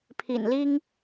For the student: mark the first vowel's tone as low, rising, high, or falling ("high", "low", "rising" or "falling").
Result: low